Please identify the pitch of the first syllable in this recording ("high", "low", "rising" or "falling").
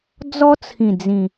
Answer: high